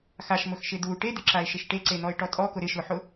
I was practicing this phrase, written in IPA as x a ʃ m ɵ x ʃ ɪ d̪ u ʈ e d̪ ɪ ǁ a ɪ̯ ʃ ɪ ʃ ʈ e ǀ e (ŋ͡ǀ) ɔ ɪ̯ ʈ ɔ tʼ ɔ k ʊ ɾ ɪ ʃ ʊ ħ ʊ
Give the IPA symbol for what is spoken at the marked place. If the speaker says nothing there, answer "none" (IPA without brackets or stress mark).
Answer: n̪